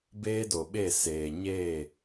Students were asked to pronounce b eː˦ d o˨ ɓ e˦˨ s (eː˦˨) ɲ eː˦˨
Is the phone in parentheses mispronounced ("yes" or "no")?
yes